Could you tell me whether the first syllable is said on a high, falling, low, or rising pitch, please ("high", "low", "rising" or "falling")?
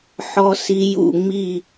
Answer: low